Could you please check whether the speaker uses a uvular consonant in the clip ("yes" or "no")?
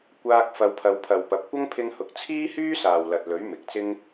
no